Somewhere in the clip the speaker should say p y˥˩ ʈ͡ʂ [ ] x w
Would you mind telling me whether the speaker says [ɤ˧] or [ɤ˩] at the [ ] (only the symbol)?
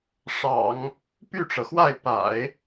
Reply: ɤ˩